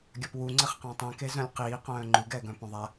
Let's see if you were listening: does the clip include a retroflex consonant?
no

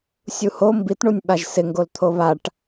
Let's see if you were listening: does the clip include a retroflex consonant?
yes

